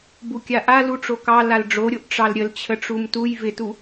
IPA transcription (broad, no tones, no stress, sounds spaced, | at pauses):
b u kʲ a ʔ a l u ʈ͡ʂ o k ɑ l a l ɖ͡ʐ o ɾʲ o ʔ ʈ͡ʂ ɑ l ɾʲ ə l t͡ɕʰ ə ʈ͡ʂ u m t u j v ɪ t u